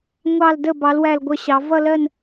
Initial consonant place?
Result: velar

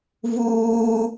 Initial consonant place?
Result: labial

